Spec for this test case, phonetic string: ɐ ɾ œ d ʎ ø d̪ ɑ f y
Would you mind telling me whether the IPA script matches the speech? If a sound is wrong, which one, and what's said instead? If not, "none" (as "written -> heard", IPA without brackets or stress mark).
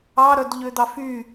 ɐ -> ɑ